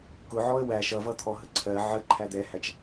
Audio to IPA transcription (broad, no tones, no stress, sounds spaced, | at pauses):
k ʊ ʕ ɔ ə̯ w æ ʃ ʌ v ʌ t̪ʰ ɔ ɦ ə ǀʰ ɜ ʕ ə ǃʰ æ d̪ ɛ h æ t͡ʃ